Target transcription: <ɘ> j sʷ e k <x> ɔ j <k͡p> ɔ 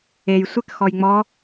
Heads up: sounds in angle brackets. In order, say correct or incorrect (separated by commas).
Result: incorrect, correct, incorrect